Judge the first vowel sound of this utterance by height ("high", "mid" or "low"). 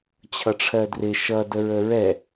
mid